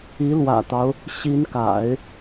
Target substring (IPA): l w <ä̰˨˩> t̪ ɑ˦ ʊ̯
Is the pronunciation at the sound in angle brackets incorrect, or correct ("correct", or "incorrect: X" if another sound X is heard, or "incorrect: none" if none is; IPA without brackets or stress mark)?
correct